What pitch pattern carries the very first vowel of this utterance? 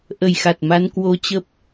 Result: low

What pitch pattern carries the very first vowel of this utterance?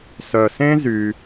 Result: low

